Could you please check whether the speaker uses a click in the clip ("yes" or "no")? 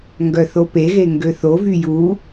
no